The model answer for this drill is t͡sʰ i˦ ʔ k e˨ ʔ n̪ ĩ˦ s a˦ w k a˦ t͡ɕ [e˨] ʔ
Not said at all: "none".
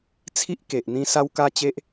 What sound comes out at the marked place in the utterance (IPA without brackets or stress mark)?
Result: e˦